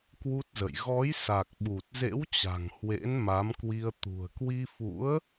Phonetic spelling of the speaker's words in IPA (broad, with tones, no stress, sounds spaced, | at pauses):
k w u˦˥ t̚ z ə̰˧˨ j ɣ ɔ˨˦ j s a˨˩ k̚ ɓ u˨˩ t̚ z ḛ˧˥ w t͡ɕ a̤˨˩ ŋ h w ḛ˧˥ n m a˨˦ m k w i˧ ə̯ t̪ ṳ˨˩ ə̯ k w i˧ f ṵ˧˥ ə̯